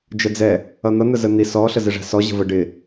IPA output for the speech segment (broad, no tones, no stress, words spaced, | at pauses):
d͡ʒəd͡zɛ | ʌn̪ʌ n̪əzən̪i sɔ ɬəzɪʐæ̤sɔ ʑə̤və ɖɪ